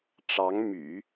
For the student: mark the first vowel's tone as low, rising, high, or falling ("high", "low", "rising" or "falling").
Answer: rising